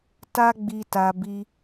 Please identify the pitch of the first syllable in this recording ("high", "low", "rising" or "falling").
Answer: high